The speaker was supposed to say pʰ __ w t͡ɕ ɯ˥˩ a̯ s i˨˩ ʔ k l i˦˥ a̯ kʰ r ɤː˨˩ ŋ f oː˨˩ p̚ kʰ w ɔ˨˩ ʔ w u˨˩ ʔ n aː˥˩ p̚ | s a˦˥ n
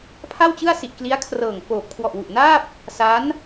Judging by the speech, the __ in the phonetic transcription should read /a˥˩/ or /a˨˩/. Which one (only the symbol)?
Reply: a˥˩